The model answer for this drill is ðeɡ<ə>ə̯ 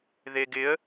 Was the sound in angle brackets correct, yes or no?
no